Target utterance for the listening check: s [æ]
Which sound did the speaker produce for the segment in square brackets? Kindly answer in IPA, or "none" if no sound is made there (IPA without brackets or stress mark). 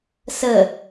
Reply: ə